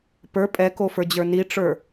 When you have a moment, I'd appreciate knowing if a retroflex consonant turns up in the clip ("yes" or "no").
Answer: yes